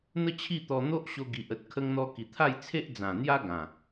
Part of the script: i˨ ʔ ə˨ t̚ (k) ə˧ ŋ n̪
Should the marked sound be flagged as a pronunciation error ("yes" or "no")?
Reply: yes